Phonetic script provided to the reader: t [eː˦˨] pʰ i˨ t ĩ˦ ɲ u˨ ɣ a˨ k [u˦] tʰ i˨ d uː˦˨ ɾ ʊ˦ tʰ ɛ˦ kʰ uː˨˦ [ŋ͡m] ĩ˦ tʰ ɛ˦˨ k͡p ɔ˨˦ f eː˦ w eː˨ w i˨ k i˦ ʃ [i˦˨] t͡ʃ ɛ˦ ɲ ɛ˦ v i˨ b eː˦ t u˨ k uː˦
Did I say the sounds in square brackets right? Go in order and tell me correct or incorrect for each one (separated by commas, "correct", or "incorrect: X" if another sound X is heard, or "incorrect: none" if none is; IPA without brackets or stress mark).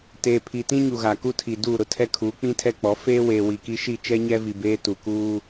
incorrect: eː˨, correct, incorrect: k͡p, correct